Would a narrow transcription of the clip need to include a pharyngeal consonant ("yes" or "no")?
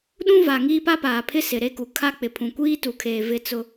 no